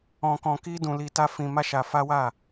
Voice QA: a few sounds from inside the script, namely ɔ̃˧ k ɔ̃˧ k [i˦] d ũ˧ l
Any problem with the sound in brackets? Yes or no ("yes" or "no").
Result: no